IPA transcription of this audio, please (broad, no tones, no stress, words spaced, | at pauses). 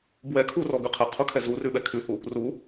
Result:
bwɛ kʰurɔɡʉ qʰɛqʰukʰɛ zurʉɓɛ kʰʉhu | ru